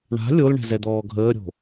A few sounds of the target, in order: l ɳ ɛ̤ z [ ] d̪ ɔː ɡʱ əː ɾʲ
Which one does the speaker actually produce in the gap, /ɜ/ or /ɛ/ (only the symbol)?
ɛ